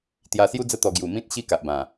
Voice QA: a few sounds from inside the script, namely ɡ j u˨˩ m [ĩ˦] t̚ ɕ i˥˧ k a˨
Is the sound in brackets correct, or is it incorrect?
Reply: correct